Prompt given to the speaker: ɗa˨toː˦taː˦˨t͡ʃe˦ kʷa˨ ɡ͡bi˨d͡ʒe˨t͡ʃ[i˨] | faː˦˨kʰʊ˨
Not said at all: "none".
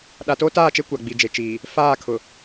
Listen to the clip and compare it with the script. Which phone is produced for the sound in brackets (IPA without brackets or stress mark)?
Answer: iː˨